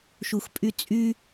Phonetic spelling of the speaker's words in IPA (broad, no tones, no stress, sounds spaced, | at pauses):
ʃ u x pʼ y t͡sʼ y